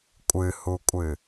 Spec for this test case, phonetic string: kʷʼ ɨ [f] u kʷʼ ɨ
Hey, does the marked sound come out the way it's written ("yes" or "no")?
no